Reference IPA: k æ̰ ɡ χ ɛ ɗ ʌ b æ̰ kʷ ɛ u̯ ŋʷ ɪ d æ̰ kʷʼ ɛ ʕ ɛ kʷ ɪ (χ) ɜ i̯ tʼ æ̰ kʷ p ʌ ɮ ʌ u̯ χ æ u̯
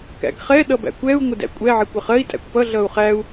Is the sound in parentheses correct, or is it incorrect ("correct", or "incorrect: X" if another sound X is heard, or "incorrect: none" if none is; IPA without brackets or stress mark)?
correct